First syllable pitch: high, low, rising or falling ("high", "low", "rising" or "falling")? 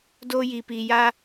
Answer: high